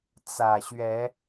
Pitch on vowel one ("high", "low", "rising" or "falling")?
low